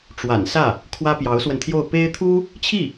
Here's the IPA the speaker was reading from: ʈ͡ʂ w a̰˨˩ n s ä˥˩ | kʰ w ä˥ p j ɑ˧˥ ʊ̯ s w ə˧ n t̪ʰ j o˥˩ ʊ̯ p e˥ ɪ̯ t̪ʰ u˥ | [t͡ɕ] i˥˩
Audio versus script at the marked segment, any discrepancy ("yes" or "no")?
yes